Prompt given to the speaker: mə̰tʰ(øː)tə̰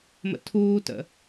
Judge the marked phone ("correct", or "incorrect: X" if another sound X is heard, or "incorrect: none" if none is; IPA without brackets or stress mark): incorrect: uː